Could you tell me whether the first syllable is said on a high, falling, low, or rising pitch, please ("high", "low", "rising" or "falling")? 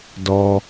high